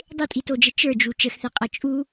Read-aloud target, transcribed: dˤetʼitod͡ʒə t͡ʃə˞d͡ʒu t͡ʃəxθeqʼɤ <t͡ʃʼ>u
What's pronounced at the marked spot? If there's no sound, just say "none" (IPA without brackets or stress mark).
t͡ʃʼ